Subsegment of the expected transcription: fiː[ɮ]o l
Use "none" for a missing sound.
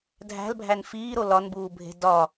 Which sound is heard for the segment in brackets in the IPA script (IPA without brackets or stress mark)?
ɾ